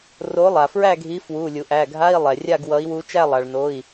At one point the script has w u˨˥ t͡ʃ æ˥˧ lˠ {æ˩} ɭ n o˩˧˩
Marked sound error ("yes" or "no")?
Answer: yes